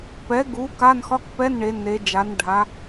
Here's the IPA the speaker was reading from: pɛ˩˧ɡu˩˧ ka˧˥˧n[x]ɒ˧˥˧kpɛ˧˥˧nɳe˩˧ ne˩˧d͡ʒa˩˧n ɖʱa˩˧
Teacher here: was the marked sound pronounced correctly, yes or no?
yes